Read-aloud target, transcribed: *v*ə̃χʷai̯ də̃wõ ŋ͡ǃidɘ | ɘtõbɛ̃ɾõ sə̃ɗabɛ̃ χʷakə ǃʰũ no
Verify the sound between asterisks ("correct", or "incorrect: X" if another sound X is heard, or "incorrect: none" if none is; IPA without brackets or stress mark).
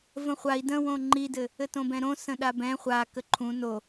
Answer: correct